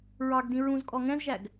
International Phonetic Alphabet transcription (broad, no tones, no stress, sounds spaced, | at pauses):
ɹ ɑ ɡ d ĩ ɹ ũ z kʼ ɔ ŋ ɛ̃ z ʒ æ ɡ